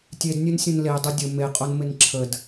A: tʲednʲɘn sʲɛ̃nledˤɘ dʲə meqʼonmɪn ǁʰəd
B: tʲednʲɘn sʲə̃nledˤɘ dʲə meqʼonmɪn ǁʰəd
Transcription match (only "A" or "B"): B